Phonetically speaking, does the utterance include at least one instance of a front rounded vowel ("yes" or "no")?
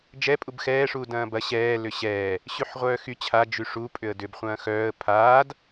yes